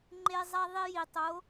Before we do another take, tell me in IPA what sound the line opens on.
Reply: ŋ͡ǃ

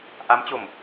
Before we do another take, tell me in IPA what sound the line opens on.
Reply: ʔ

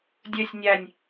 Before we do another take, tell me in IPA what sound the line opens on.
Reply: dʲ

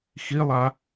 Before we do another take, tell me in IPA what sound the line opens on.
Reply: x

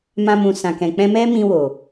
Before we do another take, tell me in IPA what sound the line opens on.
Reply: m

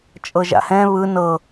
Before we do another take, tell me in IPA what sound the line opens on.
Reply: t͡ʃʼ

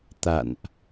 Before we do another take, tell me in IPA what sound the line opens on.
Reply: t̪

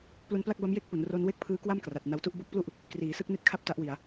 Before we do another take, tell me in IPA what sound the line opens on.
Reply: p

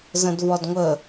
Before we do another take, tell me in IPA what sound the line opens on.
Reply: z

